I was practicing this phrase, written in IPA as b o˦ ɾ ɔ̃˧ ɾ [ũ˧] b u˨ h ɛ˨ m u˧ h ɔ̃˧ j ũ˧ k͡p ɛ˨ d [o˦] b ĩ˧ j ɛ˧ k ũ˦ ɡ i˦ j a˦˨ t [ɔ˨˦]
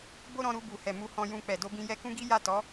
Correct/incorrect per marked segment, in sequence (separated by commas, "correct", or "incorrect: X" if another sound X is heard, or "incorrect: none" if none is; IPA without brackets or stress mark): incorrect: u˧, incorrect: o˧, correct